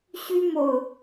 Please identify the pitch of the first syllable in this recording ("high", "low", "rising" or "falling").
high